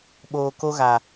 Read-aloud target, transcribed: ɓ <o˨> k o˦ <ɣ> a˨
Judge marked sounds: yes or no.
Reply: no, yes

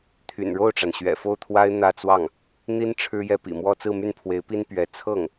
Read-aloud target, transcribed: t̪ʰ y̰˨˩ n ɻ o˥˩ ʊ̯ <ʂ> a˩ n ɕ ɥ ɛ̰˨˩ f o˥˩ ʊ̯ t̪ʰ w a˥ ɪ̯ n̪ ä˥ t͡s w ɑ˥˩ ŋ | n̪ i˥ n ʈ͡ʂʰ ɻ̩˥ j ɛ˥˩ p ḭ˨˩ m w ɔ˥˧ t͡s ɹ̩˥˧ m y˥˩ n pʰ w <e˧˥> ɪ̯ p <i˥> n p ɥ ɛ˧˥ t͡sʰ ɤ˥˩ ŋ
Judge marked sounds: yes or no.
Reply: no, yes, yes

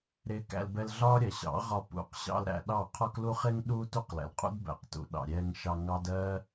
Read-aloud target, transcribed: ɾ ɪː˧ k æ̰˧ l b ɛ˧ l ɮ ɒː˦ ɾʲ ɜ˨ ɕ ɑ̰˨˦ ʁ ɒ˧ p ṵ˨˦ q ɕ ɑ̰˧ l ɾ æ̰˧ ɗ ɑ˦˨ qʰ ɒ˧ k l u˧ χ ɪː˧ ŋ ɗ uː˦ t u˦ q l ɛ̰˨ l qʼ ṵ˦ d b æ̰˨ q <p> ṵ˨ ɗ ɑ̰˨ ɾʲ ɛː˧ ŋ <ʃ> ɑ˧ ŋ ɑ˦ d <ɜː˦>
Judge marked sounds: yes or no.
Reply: no, yes, yes

